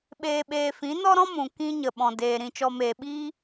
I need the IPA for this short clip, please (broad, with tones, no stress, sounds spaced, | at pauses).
ɓ eː˨ ɓ eː˨ f ĩ˨˦ n ɔ˦ ɾ ɔ̃˦ m ũ˨ k ĩ˧ ɲ ə˨ ɓ ɔ̃˨ d eː˨ ɾ ĩ˨ t͡ʃ ɔ˨ m eː˨ ɓ iː˧